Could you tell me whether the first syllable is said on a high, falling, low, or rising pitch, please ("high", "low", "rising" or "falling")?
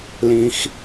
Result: low